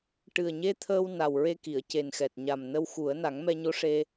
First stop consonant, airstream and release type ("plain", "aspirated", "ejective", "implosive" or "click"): plain